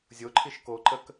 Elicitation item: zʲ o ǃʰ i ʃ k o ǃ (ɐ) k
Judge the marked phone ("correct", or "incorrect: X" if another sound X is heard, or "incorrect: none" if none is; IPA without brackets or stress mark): incorrect: ə